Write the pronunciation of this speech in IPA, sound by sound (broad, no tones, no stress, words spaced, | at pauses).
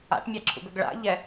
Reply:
a̰ʈmʲaǁʰṵɡɵɡ ɭa̰ ʎɛ